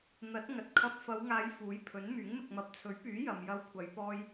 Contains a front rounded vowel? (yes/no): yes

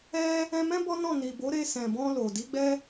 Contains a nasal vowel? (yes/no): yes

